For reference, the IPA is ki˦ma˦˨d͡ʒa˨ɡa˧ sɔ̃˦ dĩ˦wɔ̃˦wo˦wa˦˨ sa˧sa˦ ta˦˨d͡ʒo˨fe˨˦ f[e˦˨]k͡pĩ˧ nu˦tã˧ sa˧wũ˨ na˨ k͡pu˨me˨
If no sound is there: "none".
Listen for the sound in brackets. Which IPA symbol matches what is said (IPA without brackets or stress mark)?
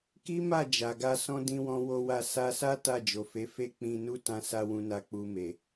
e˦˨